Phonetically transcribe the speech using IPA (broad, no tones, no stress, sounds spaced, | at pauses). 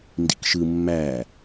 n d ḭ k ʃ ɯ mː æ